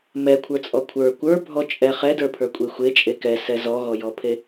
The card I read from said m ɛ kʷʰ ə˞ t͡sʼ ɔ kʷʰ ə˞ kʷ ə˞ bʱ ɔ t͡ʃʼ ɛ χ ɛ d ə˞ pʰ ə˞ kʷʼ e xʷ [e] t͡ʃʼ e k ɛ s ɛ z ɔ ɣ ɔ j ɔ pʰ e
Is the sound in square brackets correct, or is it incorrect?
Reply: correct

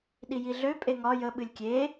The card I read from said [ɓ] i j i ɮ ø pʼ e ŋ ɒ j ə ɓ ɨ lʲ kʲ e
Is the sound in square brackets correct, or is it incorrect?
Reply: incorrect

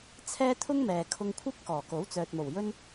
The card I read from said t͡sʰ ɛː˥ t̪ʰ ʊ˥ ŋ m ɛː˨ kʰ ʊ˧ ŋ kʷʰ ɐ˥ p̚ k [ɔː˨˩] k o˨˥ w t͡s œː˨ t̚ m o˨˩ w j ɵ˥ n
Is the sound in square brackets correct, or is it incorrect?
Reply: correct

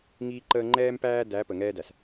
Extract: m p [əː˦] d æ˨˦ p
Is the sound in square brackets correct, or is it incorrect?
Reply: incorrect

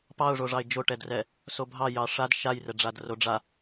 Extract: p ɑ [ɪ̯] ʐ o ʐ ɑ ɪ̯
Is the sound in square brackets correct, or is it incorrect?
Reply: incorrect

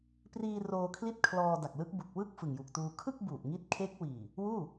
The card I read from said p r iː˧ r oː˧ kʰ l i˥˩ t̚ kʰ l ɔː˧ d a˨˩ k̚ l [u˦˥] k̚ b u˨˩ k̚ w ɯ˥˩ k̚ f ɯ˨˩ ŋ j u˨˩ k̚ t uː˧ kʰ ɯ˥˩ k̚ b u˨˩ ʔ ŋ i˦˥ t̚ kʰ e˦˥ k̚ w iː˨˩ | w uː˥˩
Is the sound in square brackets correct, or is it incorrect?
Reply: incorrect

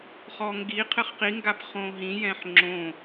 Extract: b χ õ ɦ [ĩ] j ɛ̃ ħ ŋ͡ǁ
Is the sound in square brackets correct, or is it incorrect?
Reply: correct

